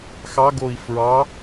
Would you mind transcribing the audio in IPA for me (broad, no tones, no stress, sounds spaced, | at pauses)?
x ɑ ɡ o i̯ f ɹ ɑ